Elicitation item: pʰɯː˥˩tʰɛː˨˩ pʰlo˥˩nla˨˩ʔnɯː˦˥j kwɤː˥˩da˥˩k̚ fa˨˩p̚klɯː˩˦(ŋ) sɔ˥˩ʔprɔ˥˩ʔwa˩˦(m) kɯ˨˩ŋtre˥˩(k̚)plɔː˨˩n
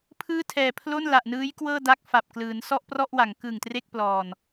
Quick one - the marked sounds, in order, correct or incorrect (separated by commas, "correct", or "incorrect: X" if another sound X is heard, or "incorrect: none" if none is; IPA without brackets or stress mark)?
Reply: incorrect: n, incorrect: ŋ, correct